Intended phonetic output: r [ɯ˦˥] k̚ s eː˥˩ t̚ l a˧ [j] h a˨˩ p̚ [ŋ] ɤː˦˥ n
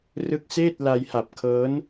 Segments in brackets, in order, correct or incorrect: correct, correct, incorrect: kʰ

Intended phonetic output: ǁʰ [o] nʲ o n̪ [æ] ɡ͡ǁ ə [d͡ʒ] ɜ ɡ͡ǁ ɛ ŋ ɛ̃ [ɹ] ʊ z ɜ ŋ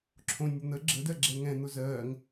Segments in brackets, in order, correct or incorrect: incorrect: õ, incorrect: ə, incorrect: d, incorrect: n̪

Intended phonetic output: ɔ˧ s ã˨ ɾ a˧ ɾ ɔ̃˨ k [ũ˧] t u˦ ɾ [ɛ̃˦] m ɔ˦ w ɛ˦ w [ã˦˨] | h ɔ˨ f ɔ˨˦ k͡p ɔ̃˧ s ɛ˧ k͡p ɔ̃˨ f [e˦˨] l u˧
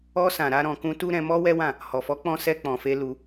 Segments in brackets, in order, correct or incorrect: correct, incorrect: ɛ̃˧, correct, incorrect: e˧

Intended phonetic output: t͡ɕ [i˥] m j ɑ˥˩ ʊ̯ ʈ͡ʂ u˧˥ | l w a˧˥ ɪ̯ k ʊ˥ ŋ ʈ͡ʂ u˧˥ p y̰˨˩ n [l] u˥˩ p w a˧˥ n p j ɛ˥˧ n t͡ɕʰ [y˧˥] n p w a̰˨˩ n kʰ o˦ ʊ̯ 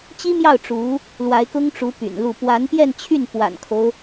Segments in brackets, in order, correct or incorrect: correct, correct, incorrect: y˥˩

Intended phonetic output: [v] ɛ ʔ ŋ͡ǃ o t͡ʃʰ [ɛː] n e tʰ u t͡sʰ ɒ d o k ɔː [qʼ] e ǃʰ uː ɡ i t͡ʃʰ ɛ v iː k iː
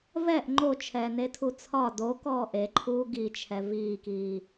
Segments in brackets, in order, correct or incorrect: correct, correct, incorrect: ʔ

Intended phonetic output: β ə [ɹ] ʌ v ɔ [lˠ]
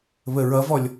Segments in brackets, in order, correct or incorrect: correct, incorrect: lʲ

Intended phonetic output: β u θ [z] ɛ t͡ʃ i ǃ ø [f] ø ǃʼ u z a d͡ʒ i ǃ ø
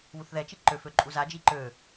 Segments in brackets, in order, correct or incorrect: incorrect: ð, correct

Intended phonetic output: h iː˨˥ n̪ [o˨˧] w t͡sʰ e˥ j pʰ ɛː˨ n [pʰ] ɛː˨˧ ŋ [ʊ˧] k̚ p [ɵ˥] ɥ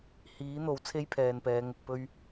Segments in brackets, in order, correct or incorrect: incorrect: o˨˥, incorrect: p, incorrect: ʊ˨, correct

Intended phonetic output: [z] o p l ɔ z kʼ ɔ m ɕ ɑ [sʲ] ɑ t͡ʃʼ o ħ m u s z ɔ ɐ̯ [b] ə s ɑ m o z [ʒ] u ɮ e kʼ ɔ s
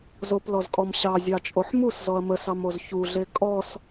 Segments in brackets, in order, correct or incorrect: correct, incorrect: zʲ, incorrect: m, incorrect: ç

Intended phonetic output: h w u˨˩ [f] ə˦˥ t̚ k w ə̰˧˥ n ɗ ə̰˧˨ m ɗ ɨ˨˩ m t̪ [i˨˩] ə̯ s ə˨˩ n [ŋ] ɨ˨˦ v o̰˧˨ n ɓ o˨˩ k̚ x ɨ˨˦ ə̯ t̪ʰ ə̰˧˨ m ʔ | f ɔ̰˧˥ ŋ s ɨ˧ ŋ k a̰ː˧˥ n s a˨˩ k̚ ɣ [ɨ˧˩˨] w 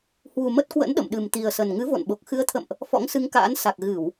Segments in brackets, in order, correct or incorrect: incorrect: m, correct, correct, correct

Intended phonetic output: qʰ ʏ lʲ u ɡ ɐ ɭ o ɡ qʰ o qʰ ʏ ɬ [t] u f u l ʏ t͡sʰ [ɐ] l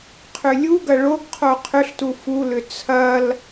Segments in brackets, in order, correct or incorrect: correct, correct

